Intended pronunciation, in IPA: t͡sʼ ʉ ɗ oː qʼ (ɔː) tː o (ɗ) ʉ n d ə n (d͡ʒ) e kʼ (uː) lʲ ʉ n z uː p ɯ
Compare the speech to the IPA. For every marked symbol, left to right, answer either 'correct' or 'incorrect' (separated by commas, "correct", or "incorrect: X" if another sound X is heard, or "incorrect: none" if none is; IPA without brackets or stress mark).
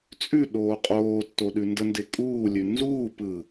incorrect: oː, correct, incorrect: d, correct